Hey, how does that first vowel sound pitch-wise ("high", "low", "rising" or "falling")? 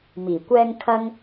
low